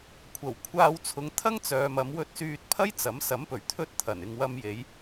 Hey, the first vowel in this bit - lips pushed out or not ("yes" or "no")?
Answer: no